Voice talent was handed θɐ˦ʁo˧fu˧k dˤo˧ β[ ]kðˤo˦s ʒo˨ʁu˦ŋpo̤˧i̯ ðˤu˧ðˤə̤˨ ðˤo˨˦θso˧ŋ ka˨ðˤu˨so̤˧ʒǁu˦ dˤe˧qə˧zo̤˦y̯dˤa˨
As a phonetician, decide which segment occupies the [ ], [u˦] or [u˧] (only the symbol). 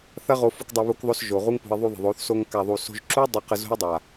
u˦